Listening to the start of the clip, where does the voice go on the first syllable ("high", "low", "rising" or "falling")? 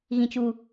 high